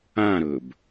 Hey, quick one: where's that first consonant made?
tongue tip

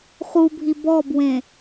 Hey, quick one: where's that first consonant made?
uvula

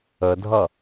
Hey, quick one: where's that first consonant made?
tongue tip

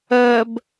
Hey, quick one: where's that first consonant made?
lips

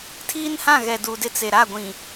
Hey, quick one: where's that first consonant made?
tongue tip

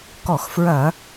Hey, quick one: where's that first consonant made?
velum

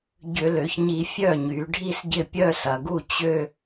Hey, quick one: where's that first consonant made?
palate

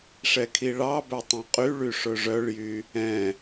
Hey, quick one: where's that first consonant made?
retroflex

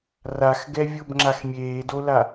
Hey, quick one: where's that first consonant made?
tongue tip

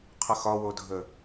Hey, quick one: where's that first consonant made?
uvula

